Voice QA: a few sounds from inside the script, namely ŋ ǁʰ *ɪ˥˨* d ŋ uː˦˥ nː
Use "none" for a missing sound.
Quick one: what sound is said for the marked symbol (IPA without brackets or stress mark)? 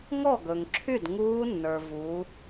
y˥˨